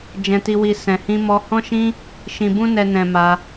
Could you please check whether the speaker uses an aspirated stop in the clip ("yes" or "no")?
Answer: no